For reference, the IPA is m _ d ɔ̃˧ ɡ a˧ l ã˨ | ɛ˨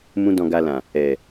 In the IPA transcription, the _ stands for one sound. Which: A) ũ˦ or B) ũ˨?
A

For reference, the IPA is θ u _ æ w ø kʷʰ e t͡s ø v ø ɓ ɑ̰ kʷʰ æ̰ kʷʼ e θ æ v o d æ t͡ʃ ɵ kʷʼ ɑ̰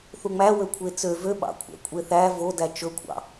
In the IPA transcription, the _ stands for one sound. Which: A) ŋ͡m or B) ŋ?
A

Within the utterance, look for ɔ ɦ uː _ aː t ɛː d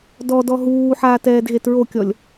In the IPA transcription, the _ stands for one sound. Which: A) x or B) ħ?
B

